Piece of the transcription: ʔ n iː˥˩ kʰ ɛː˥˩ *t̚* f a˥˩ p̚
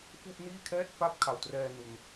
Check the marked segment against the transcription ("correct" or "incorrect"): correct